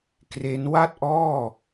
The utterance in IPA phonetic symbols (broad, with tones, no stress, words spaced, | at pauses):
kre˦˥n wa˥˩t̚ʔɔː˥˩